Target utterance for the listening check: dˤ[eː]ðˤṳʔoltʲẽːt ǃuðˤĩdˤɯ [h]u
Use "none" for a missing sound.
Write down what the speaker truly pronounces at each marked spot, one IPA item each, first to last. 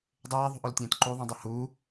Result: eː, h

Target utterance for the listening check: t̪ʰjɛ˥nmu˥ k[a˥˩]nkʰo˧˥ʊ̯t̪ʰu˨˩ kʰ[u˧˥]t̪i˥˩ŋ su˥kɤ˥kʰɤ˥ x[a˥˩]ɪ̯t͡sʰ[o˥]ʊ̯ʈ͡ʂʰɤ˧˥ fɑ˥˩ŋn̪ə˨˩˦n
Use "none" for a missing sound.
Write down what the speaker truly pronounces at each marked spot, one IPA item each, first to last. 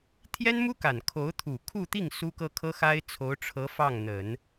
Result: a˨˩, u˥˧, a˥, o˧˥

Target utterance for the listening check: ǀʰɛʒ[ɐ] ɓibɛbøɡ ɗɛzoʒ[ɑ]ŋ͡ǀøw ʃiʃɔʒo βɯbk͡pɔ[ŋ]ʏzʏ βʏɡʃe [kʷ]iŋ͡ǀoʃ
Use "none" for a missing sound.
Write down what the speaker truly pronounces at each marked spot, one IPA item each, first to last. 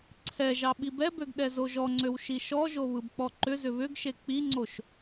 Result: ɑ, ɔ, ǃ, k͡p

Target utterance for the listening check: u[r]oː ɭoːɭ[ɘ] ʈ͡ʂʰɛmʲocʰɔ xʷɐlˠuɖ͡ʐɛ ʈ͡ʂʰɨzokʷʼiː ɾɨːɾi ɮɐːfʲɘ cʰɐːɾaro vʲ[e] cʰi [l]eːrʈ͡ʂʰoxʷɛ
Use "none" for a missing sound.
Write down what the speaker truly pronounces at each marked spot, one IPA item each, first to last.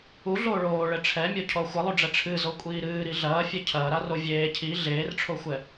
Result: ɮ, ɘ, eː, ɮ

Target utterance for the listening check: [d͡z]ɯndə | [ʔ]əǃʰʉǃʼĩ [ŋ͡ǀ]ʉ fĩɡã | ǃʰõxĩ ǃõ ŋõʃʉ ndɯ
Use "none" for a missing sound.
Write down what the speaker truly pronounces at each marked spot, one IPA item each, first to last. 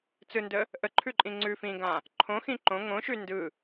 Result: t͡s, ʔ, ŋ͡ǀ

